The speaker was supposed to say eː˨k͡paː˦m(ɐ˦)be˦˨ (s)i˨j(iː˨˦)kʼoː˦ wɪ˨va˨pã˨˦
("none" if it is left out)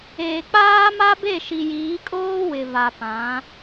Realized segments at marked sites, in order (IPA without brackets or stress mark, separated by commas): a˦, ʃ, iː˨˦